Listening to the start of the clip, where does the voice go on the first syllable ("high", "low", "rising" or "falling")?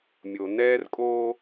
low